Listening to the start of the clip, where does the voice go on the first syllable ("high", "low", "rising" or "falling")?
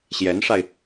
rising